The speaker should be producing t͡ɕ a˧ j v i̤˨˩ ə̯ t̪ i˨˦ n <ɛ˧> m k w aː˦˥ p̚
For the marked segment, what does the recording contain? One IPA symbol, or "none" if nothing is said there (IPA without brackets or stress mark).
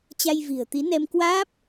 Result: ɛ˧